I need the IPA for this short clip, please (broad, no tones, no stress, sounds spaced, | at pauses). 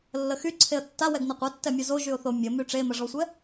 lː ə x y ǀʰ e ə̯ tː a w ɛ ɡ n ə qʷ ɛ tː ɛ mʲ o z o ʒ y ʊ̯ θ o mʲ ə m y ʈ͡ʂ e m ə ʐ ɔ sʷ ɛ